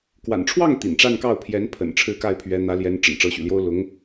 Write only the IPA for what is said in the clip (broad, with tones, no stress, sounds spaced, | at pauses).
k w a̰˨˩ n ʈ͡ʂʰ w ɑ˥˩ ŋ t̪ ḭ˨˩ n ʈ͡ʂ a˥˧ n k ɑ˥˩ ʊ̯ pʰ j ɛ˧˥ n pʰ ə̰˨˩ n ʈ͡ʂʰ ɻ̩˥˧ k a˥˩ ɪ̯ pʰ ɥ ɛ˧˥ n̪ ä˧˥ l j ɛ˧˥ n ʈ͡ʂ ə̰˨˩ n ʈ͡ʂ ɤ˧˥ ɕ y̰˨˩ l j o˥ ʊ̯ l ʊ˧˥ ŋ